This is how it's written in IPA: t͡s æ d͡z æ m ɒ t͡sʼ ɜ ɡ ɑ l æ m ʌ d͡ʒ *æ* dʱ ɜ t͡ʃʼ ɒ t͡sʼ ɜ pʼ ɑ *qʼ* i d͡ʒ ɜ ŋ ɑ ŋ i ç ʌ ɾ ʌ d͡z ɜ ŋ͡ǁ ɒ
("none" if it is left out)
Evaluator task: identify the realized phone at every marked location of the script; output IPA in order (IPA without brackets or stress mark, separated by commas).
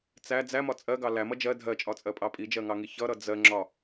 ɜ, pʼ